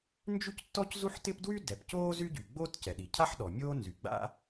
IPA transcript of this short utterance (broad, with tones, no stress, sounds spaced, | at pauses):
n d͡ʒ y˥ c tː ɔ˥ c z u˥ ħ t ɪ˥ p d w y˥ d ɛ˩ p c oː˥ z y˥ ɟ y˩ ɡ͡b oː˥ t c ɛ˩ ɗ i˩ cʰ a˥ ħ ɗ ɔ˩ mʲ oː˥ n z y˩ ɡ͡b a̰˥